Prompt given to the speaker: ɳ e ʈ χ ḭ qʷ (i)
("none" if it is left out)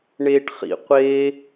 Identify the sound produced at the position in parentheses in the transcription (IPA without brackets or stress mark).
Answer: e